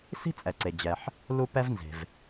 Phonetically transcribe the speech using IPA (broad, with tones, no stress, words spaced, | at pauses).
si̤˥t͡sʼɛ˩ǀe˩d͡ʑɛ˩ħ | lu˥pɛ˥vnze̤˩v